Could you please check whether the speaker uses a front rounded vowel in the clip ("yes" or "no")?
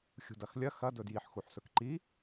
no